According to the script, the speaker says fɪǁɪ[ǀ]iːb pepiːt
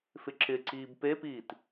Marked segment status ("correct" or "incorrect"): correct